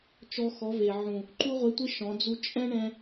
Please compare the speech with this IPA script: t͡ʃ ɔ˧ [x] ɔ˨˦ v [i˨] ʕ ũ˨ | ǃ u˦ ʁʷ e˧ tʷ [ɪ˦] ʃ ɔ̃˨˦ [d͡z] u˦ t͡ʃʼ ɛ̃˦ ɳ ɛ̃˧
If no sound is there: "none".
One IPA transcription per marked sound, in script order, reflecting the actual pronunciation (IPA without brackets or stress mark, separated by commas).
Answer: x, e˨, ɪ˦, d͡z